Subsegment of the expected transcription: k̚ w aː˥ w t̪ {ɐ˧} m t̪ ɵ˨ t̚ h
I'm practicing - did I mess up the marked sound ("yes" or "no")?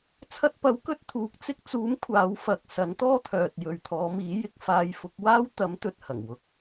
yes